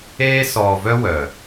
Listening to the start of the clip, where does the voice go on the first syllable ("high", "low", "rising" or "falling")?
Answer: high